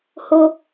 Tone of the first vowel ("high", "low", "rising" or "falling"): high